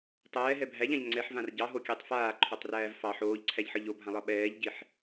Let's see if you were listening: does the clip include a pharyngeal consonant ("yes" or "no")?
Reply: yes